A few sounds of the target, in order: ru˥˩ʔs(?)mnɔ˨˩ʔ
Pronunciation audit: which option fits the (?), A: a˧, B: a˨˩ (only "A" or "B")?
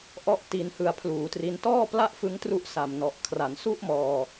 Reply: B